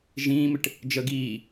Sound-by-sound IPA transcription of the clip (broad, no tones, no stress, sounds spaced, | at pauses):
ʒ ĩː m ɪ ʈ | d͡ʒ ə ɡ iː